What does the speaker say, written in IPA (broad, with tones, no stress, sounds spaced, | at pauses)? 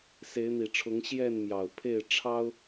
s e˨˦ ɪ̯ n̪ i˨˩ ʈ͡ʂʰ ʊ˨˦ ŋ ɕ j ɛ˥˨ n m j ɑ˨˩ ʊ̯ pʰ e˥˨ ɪ̯ ʈ͡ʂʰ ɑ˦ ʊ̯